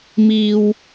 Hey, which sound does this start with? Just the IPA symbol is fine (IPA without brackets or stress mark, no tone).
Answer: m